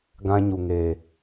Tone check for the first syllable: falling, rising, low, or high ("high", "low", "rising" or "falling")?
high